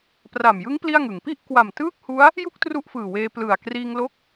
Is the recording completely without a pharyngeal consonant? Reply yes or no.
yes